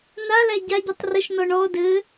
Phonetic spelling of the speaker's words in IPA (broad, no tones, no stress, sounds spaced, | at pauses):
n a l æ ɟ a ɟ ɨ tˤ r ə ʃ n ɔ ɳ ɔ d ɘ